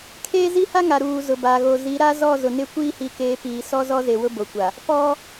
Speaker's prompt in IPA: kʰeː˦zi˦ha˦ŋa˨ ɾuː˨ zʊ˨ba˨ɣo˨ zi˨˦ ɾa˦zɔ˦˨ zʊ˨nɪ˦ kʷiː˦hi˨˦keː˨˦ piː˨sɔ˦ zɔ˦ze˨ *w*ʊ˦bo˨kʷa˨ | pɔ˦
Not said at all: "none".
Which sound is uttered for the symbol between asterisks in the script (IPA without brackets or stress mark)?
w